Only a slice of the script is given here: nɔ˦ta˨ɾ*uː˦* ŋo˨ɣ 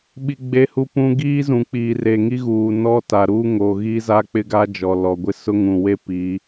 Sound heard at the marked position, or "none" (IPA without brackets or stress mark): uː˦